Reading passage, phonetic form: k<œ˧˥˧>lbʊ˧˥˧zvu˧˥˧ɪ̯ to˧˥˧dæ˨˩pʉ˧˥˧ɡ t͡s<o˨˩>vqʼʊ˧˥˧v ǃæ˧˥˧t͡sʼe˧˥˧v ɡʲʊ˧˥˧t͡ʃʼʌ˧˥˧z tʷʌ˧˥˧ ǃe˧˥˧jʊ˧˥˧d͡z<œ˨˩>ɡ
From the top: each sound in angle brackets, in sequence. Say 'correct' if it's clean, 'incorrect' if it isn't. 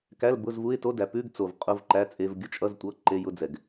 incorrect: æ˧˥˧, correct, incorrect: ɛ˨˩

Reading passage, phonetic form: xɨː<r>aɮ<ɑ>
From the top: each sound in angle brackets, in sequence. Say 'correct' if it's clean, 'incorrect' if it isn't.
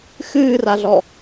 correct, incorrect: ɔ

